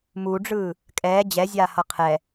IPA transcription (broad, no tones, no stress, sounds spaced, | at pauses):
m u ɖ͡ʐ ɯː | kʼ ɛː d͡ʑ ɛ zʲ aː h ʌ qʰ ɛ